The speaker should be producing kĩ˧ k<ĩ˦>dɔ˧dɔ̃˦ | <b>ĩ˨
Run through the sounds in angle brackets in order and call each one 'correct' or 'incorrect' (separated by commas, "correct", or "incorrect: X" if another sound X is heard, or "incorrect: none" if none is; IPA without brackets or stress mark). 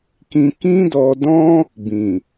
correct, correct